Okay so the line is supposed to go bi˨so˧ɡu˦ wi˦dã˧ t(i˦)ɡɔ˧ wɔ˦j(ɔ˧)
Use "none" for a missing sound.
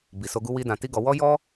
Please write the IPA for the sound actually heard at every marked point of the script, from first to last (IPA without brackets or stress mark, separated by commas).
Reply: i˦, ɔ˦